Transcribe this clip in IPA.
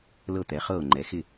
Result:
l ɤ˥˩ t̪ ɛ˩˥ χ ɤː˥˩ ŋ͡ǃ ɛ˩˥ x ɪ˥˩

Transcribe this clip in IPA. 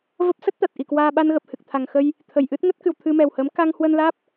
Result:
v ə˦˥ p̚ s ə˦˥ t̚ t̪ a˨˩ t̚ ʔ i˨˩ k w aː˧ ɓ a˧ n ɣ ə˨˩ p̚ h ɨ˨˩ k̚ t̪ʰ a˨˩ ŋ x ə˧ j | t̪ʰ ə˨˩ j ʔ ɨ˦˥ t̚ ŋ ə˦˥ t̚ k ɨ˨˩ w t̪ʰ ɨ˧ m ɛ˨˩ w h əː˨˦ m k a˧ ŋ h w ə˧ n l aː˦˥ p̚

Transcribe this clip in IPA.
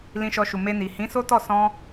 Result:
l ĩ˧ ʃ ɔ˧ ʃ u˨ m e˧ n i˨ h ĩ˨˦ s o˦ t ɔ˦˨ s ɔ̃˧

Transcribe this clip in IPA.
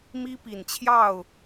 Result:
m i˦ p i˨˩ n t͡ɕʰ j ɑ˥˨ ʊ̯

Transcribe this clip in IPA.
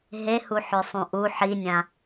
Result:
ɦ e h u ħ ø sˤ ũ ʔ u ħ i nʲ ã

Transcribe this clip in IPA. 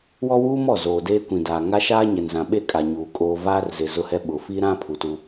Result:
w ɔ˦ w uː˦ m ɔ˦˨ z oː˨ d eː˦ kʷ ĩ˨ d aː˨ ŋ a˦ ʃ aː˦ ɲ ɛ˨ n z ã˨ ɓ e˦ kʼ a˨ ɲ uː˨ kʼ oː˦ v aː˦ r z ɪ˨ z ʊ˦ h ɛ˦ ɓ ʊ˨ f i˦ ɾ ã˦ pʰ u˨ t u˦

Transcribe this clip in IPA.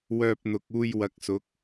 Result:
w œː˧ p̚ n̪ ʊ˨ k̚ uː˧ j w ɐ˨˥ k̚ s ʊ˨˥ k̚

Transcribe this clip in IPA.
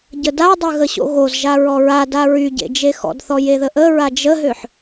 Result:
ɟ ə d a dˤ ø ɣ ə ɕ o̰ ɣ o z ʒ a ɹ ɔ ɹ a d a ɹ y ɟ ḛ d͡ʒ e x ɔ̰ d θ ɔ j e ð ə ʔ ə ɹ a d͡ʒ ə ɦ ø ħ

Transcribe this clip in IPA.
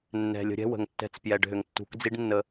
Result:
nː ɛ̤˨ lʲ ə̤˧ ɾʲ ɛ̤˦ w ə̤˨ ŋ tː ɛ̤˧ t͡s p j ɛ˨ ɖ ɦ ʏ˨ ŋ tː ṳ˨˦ k d͡z i˦ ɖ nː ə˧

